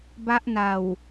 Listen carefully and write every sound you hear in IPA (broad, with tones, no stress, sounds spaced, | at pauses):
b a˦˥ ʔ n a˨˩ w